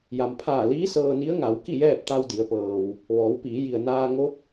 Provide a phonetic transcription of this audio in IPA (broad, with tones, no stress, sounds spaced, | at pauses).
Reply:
j a˩ m pʰ aː˧˩ l iː˧˥ s ɤː˧ n i˧˥ ə̯ ŋ a˩˧ w k i˥˨ j ɛː˥˨ p̚ t̪ a˧ w d i˩˧ ə̯ p ɤː˩ w | ʋ ɔː˩˧ w p iː˩˧ j i˩ ə̯ n aː˧ ŋ o˧˥ p̚